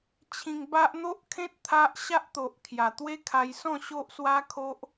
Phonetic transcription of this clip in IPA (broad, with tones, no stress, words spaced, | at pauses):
t͡ɕʰĩ˧ŋba˦ʔ n̪o˦ʔkʰẽ˦t̚ t̪ʰa˦ʔ ɕa˦ʔt̪o˨ʔ kʰja˨˩t̪we˦kʰa˧j sɔ̃˥˧ ɕo˦ʔswa˦kʰo˦ʔ